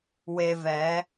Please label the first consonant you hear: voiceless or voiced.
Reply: voiced